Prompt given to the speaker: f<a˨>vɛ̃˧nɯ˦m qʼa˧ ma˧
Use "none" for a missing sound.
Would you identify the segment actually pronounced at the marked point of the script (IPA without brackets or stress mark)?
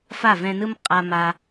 a˦˨